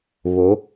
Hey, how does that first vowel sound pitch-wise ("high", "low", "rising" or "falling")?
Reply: rising